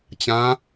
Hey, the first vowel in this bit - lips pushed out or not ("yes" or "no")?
no